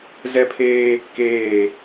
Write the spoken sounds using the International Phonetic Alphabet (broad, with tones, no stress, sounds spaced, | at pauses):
z ɛ˦ pʰ eː˦ | k eː˦˨